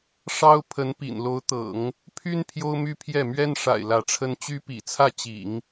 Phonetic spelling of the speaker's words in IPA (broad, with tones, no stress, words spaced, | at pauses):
ʂɑ˥ʊ̯ pʰə˧˥npḭ˨˩nlo˧˥ʊ̯t̪ɤ̰˨˩˦ŋ | pʰy˥n pʰjo˥ʊ̯my˥ pʰjɛ˥˩ mɥɛ˥nʂa̰˨˩ɪ̯ lä˧˥ʈ͡ʂʰə˥n t͡ɕy˥pḭ˨˩t͡sʰä˥˩ t͡ɕḭ˨˩˦ŋ